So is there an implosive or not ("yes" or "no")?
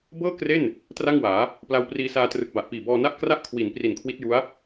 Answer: no